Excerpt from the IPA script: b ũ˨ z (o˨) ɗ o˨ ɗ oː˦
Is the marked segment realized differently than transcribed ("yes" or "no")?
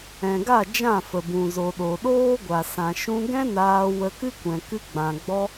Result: no